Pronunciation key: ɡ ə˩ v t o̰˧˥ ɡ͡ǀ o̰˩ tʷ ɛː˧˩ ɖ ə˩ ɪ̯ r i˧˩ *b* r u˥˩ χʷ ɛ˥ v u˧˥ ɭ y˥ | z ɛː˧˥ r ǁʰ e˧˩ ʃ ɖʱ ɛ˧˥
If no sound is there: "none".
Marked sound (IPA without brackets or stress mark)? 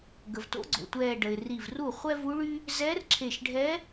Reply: v